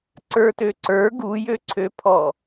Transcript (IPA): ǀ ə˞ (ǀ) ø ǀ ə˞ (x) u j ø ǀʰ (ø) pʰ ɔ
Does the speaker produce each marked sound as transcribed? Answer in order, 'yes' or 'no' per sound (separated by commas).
no, no, yes